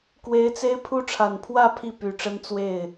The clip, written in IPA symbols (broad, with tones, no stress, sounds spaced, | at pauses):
k w e˧˥ ɪ̯ t͡s e˥ ɪ̯ pʰ u˥ ʈ͡ʂʰ a˨˩ n pʰ w ä˥˧ pʰ i˥˩ p y˨˩ ʈ͡ʂ ə˥ n t͡s w e˥˩ ɪ̯